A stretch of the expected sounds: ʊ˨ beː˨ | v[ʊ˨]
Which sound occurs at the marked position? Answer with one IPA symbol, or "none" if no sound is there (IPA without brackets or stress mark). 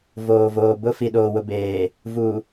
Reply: u˨